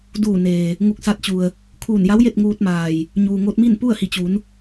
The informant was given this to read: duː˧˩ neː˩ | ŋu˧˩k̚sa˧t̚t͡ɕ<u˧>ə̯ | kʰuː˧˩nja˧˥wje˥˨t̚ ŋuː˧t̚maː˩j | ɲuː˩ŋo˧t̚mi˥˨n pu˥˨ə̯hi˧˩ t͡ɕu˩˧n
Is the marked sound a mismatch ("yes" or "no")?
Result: yes